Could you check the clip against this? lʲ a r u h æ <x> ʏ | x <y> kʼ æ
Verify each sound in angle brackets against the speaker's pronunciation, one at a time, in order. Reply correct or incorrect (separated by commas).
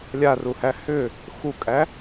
incorrect, incorrect